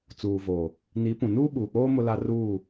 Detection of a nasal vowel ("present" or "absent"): present